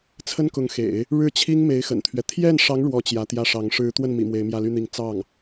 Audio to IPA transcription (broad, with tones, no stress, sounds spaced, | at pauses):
t͡sʰ ə˥ n k ʊ˧˥ ŋ x ḛ˨˩˦ ɪ̯ | ɻ ɻ̩˥˩ t͡ɕʰ i˥ ŋ m e˧˥ ɪ̯ x ə̰˨˩ n t̪ʰ ɥ ɛ˦ t̪ʰ j ɛ˥˩ n ʂ ɑ˧˥ ŋ ɻ w ɔ˥ t͡ɕ j ä˧˥ t̪ j ä˥˩ ʂ ɑ˧˥ ŋ ʂ ɻ̩˧˥ t̪ w ə˥˩ n m ḭ˨˩ m w e˧˥ ɪ̯ m j ä˥˧ l y˥˧ n̪ i˥˧ ŋ t͡s ɑ˥˩ ŋ